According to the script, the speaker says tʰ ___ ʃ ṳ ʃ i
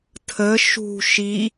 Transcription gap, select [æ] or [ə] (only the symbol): ə